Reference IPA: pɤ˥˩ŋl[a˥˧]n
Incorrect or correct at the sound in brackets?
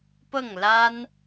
incorrect: a˥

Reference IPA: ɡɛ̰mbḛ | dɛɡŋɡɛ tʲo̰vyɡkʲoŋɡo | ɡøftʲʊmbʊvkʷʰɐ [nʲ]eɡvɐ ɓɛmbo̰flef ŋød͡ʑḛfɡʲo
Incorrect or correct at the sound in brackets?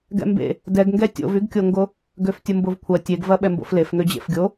incorrect: tʲ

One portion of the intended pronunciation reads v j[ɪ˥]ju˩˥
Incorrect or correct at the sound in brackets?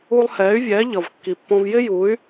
correct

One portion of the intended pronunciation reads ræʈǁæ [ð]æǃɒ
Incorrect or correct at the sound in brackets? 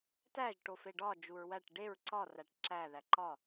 correct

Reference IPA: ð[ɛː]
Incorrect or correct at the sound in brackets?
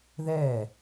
correct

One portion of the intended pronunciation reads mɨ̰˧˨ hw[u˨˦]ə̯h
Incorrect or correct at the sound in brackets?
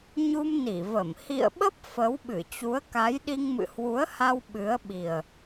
correct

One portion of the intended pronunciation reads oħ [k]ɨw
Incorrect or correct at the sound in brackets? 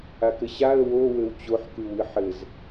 correct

